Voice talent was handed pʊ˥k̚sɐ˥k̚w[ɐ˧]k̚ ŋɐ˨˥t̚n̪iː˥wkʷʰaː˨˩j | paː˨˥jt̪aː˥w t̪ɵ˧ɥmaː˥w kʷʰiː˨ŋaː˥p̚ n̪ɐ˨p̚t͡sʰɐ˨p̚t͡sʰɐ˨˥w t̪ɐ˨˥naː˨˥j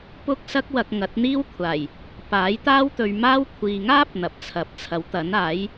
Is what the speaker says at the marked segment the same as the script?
yes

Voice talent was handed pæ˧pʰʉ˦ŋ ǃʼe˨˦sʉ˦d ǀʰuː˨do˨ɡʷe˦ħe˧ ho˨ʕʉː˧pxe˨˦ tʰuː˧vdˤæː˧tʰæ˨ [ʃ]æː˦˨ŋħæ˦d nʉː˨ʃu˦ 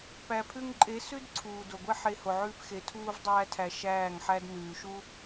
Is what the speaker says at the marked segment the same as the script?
yes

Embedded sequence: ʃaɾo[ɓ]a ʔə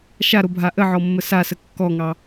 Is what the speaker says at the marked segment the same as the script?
no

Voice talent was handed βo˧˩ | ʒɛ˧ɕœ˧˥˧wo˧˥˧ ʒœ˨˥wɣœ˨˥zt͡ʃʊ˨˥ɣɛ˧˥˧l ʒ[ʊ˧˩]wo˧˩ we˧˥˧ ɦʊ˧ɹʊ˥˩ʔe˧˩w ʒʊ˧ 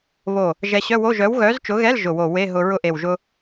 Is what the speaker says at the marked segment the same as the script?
yes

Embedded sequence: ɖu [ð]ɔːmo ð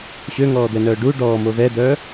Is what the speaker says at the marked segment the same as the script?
no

